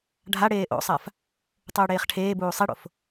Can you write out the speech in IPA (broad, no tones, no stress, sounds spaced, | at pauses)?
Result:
ɖʱ a ɽ eː ʔ o̰ sˤ a f | tˤ uː ɽ eː χ ʈʰ eː b uː sˤ i ɽ o̰ f